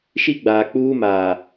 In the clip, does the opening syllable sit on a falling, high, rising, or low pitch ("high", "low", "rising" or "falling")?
high